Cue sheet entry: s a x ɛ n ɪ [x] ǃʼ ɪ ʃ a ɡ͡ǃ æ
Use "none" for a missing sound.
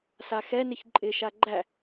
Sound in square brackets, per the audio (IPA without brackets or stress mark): ç